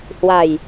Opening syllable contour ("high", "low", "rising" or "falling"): low